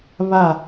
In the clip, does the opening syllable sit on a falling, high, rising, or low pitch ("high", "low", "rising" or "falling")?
falling